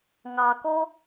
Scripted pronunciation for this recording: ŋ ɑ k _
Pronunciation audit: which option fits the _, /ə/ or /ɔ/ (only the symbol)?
ɔ